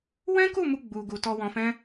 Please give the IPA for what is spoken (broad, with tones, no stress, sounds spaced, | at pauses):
w ɛ̃˦ k u˦˨ m u˧ ɡ͡b u˧ ɡ u˧ t ɔ˧ w ɔ̃˧ f ɛ̃˦